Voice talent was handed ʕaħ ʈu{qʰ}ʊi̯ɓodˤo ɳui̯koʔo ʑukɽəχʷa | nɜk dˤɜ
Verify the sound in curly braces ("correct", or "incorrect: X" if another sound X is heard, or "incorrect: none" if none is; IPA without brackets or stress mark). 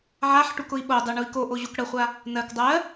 incorrect: k